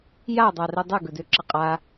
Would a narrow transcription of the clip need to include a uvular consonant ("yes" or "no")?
yes